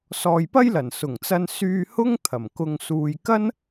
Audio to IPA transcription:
s ɔː˨ j p ɐ˥ j l ɐ˨˩ n s ʊ˨˩ ŋ t͡s ɐ˧ n s yː˧ h ʊ˥ ŋ t̪ʰ ɐ˨˩ m k ʊ˧ ŋ s uː˧ j k ɐ˥ n

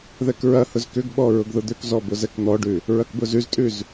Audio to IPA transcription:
ð ɛ k ɹ ɐ h ʊ z k ʏ ɡ ɓ ɔ ɹ ʊ ɡ ð ʊ d̪ ʏ k z ɔ b ʊ z ɛ k n̪ ɔ ɖ ʉ | ɹ ɐ k b ʊ z ʉ z tʼ ʉ z

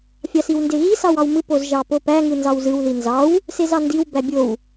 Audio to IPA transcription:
fʲ ɑ s i w n d e ɣ i s ɑ w ɑ w m ɯ p o z ʒ ɑ p o p æ ŋ ɯ n z ɑ w z ɯ w ð i n z ɑ w | s e z ɑ n d i w b æ bʲ o w

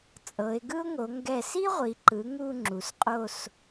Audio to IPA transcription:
t͡sʼ ɤ˩˧ ɪ̯ ɡ ɯ˥ ʊ̯ ŋ o˩˧ ŋ ɡ ɛ˧˩ s i˥ ʁʷ i˩˧ ǃ ɯ˩˧ ŋ u˥˧ ŋ͡ǁ u˩˧ s qʼ o˥˧ s

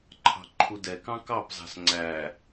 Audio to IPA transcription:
ǃʰ ɑ̤ ǃʰ u d ɛ k ɑ̃ k ɑ p z ɑ̤ s ŋ͡ǀ æ

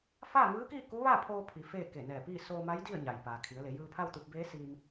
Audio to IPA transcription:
f aː˥˨ ŋ ɯː˧˥ k iː˥˨ k u˧˥ ʋ a˥˨ pʰ oː˧ pʰ i˩˧ f eː˥˨ k e˧˩ n ɛː˧˩ p iː˥˨ s oː˧ m a˧˥ j d i˥˨ ə̯ ɲ a˩ j p aː˩ kʰ i˩˧ ə̯ l e˩˧ j ɯː˧ pʰ a˥˨ w t̪ u˧ p̚ b eː˧˥ s iː˧ m

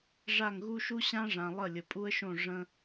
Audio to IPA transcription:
ʐ a˦˨ ŋ ɣ u˦ ʃ u˦ ɕ ã˦ ʐ ã˨ lˠ ə˦˨ lʲ ə˨ pʼ u˦ ə̯ ʃ õ˦˨ ʐ ə̃˧

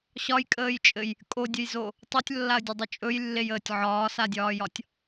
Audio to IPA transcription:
ɕ ɒ j kʼ əː j t͡ʃʼ ɘ j | kʼ o dʲ ə j z o | tˤ o tʲ lː a ə̯ dʲ ɵ dˤ ɵ t͡ʃʼ ɵ j lː e j əː tʲ ʕ ɒː s a dʲ ɒː j ɒ tʲ

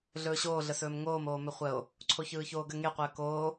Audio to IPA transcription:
ɮ ɵː ɕ oː ɮ ə s ɵː m ŋ oː m oː m ɵ χʷ əː o̯ | ǀʰ o ç ɯː ç oː ɡ ə ŋ e qʷ əː k oː

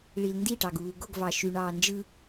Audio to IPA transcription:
ɭ i l n d i ʈ ɑ ɡ uː ɡ o ɡ v ɑ ʃ y ɳ ɑː n d͡ʒ ɯ

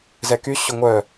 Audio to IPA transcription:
z ɛ k y ɕ ʊ ŋʷ œ

